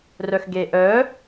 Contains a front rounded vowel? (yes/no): yes